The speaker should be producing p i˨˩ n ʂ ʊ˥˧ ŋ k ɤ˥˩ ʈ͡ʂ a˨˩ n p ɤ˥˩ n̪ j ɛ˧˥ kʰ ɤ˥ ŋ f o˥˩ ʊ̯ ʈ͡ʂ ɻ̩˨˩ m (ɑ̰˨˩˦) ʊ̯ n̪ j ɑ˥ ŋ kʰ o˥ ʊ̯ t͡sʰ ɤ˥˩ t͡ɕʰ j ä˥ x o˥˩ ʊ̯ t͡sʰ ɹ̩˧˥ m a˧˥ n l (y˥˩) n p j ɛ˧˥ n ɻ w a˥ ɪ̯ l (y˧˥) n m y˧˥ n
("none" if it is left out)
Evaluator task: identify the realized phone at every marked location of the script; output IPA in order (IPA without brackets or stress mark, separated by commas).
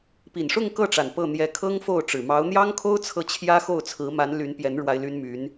ɑ˧˥, y˧˥, y˥